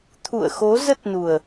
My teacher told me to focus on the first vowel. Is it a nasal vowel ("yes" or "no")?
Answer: no